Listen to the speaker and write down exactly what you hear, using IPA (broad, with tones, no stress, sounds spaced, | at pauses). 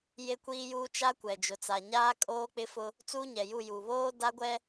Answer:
j e˦ kʷ iː˦ j uː˦ t͡ʃ a˦ kʷ ɛ˨ d͡ʒ ʊ˨ t͡s a˨ ɲ aː˦ kʼ oː˦ k͡p ɪ˦ f ʊ˦ | t͡s u˦ ɲ ɛ˨ j u˦˨ j u˨ β oː˦ d a˦ ɡʷ ɛ˦